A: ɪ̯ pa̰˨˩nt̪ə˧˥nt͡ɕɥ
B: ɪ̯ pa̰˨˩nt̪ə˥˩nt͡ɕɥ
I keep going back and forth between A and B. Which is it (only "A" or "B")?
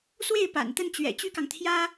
B